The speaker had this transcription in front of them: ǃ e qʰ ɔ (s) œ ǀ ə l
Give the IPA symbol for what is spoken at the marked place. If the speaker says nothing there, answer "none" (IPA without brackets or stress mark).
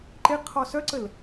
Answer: s